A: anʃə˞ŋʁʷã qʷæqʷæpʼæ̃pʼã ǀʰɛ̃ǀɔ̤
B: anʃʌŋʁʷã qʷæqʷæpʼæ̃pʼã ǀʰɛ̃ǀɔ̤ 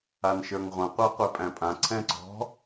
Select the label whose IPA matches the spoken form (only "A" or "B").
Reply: A